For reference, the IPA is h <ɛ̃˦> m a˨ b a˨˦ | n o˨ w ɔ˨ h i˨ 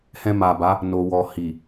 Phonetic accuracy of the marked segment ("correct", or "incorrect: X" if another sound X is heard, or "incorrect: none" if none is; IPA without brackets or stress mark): incorrect: ɛ̃˧